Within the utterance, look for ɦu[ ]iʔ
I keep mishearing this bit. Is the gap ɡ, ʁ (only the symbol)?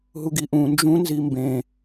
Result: ɡ